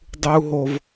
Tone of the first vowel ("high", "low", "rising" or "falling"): high